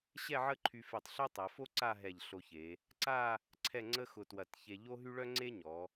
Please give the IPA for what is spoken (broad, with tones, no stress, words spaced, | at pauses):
ɕɛ˥˧ʕə˥˧ǃʰy˧fe˧˩tˤ ɬœ˥tˤɛ˩˧fo˥ ǀa˥˧ɦɛ˧˩ʎ ɬo˧çe˩˧ | ǀa˥˧ | ǀʰɛ˥˧ŋ͡ǀə˥xʊ˧twɐ˧˩t çe˧ʎo˥ɦy˥ ɭœ˥ŋ͡ǀe˥ɲɔ˩˧